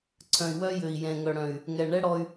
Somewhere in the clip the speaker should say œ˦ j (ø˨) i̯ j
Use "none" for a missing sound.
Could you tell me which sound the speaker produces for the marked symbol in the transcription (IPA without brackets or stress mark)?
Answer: ø˨